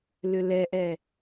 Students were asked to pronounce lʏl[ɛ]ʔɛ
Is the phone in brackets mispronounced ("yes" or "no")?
no